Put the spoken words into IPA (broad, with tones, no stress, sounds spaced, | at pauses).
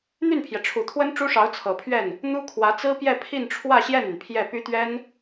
n̪ y˥˩ n pʰ j ɛ˩ ʈ͡ʂʰ u˨˩ t̪ʰ w ə˥ n ʈ͡ʂ u˥ ʂ ɑ˧˥ ʊ̯ t͡sʰ ɤ˨˩ pʰ ɥ ɛ˥˩ n | n̪ u˥ kʰ w ä˧˥ t͡s ɹ̩˥ p j ɛ˥˧ pʰ i˥˧ n ʈ͡ʂʰ w ä˥˧ ɕ j ɛ˥˩ n y˩ n pʰ j ɛ˥˩ p y˥ t̪ ɥ ɛ˥ n